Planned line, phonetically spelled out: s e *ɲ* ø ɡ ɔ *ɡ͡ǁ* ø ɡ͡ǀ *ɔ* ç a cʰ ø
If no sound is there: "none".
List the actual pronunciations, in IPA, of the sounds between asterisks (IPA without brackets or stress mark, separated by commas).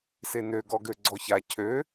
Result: n, ɡ, ɔ